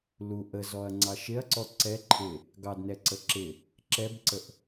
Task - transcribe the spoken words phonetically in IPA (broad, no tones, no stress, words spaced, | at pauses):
lu ʔəzɔɐ̯ŋ͡ǀɑ ʃɪɐ̯ǀɔ ǀɛ ǃʰɪ | ɡɑdnɛǀə ǁɪ | ǁɛbǀəʔ